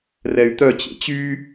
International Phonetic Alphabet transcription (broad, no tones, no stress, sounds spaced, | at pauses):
r ɛ y̯ t̪ œ t͡ɕ ḛ t͡ɕ y